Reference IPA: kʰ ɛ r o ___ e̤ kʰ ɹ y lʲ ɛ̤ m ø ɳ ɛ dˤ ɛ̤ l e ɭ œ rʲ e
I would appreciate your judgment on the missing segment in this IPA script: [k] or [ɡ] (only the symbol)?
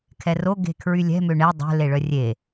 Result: ɡ